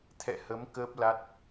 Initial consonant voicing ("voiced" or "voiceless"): voiceless